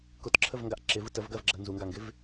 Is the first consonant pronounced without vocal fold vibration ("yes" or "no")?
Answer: yes